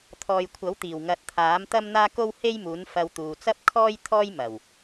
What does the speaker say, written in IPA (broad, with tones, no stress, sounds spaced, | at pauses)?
t̪ʰ ɔː˨ j kʷʰ ɐ˨˥ w t̪ iː˨˩ w ŋ ɐ˨˥ t̚ t̪ʰ aː˨˥ m t̪ ɐ˥ m n̪ aː˥ k o˥ w h e˥ j m uː˨˥ n f ɐ˧ w t̪ uː˨ t͡s ɐ˥ p̚ kʰ ɔː˥ j t̪ʰ ɔː˥ j m ɐ˨˩ w